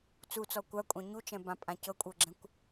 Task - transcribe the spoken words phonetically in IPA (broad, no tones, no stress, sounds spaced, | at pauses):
t͡s u t͡s ɔ kʷ a kʷʼ ã ɲ u t͡ʃ ɛ̃ b ã pʼ ã c ɤ kʷʼ ɤ ɡ͡ǁ ɛ̃ kʷ